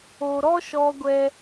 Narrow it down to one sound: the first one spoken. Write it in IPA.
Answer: o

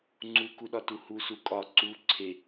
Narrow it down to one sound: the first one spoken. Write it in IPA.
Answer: ŋ͡ǀ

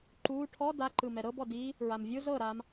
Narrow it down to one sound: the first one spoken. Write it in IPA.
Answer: ǃ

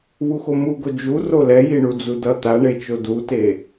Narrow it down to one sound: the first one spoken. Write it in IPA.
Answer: β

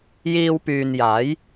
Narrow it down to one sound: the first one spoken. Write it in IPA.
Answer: j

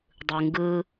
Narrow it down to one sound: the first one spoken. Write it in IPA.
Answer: dˤ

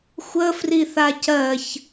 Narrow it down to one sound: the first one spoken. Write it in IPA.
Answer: xʷ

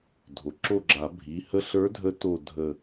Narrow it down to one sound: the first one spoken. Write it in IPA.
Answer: dʱ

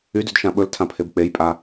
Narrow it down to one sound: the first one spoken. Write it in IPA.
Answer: y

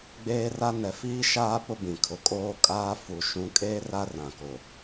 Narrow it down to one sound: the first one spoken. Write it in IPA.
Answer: ɡ͡b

